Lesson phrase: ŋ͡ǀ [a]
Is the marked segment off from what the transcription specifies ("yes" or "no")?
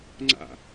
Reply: yes